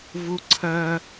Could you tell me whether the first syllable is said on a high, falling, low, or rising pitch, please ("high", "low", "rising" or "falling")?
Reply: high